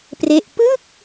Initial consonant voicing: voiceless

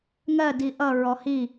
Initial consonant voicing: voiced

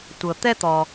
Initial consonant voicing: voiceless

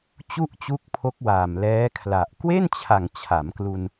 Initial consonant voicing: voiceless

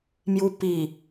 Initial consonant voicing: voiced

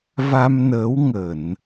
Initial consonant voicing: voiced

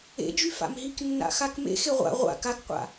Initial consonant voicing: voiced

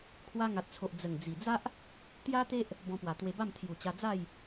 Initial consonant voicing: voiceless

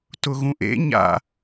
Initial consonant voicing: voiceless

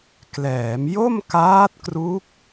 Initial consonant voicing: voiceless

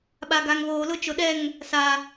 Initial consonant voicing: voiced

